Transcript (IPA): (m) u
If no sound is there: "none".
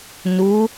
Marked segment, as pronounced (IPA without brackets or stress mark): n